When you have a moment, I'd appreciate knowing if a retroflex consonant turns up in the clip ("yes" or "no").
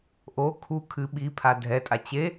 no